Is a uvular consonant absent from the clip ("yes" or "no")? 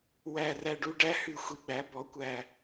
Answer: yes